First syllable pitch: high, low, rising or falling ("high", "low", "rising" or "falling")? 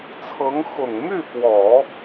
rising